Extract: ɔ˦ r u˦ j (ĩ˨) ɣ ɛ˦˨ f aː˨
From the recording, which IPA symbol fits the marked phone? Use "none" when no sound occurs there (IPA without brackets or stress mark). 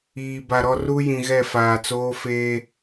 ĩ˨